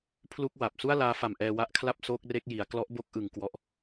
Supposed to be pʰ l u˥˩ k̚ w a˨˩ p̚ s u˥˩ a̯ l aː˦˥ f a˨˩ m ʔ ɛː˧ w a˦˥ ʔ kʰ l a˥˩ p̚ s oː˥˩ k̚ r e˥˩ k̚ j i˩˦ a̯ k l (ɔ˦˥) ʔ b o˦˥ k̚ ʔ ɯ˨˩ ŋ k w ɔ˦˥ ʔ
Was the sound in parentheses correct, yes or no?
yes